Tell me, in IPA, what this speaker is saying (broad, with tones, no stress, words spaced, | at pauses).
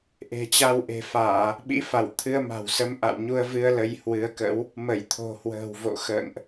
ʔe̤˨˩t͡ɕa˧wʔe̤˨˩faː˧˩˨ | ɓḭ˧˥fa˧˩wt̪ʰɨ˧ə̯ ma̤˨˩w sə˧mʔa̰˧˨wɲu˧ə̯vɨ˧ə̯ lə˧jhwɨ˨˦ə̯kə̰˧˥w | mə˧˩jt̪ʰo̤˨˩hwə̤ː˨˩w vo̰˧˨xə̰ː˧˨ŋʔ